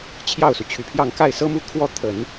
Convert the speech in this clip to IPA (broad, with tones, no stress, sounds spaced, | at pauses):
t͡ɕʰ j ɑ˥˩ ʊ̯ s u˩ t͡ɕʰ y˨˩ pʰ j ɑ˥˧ ŋ k a˥˩ ɪ̯ s ɤ˥ m u˥˧ kʰ w ɔ˥˩ t̪ʰ ə˨˩˦ n